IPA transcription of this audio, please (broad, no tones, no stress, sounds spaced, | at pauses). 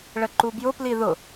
ɭ ə ǃ u b j ʊ p l i ð ʊ